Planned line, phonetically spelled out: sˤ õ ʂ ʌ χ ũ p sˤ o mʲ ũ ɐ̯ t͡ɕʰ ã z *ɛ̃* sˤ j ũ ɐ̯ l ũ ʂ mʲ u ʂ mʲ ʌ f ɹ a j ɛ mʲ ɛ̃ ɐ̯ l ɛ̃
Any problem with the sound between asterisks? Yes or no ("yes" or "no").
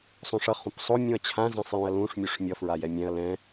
no